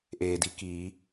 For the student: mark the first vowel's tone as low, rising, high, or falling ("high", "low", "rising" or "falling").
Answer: low